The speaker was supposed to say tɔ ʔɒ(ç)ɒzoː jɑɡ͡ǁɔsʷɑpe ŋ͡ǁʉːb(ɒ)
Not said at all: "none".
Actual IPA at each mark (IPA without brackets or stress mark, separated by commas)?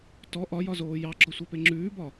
j, ɒ